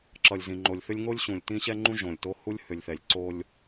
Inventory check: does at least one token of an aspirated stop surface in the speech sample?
no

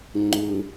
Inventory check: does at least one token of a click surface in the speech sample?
yes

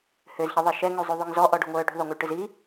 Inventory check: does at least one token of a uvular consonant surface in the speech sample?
no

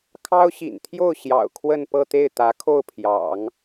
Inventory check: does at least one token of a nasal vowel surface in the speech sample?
no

